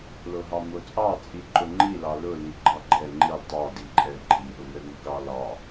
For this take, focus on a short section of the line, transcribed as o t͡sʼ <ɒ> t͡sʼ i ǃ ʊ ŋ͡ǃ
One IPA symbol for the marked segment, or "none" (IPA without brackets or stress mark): ɑ